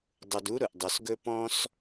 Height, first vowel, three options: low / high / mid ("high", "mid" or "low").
high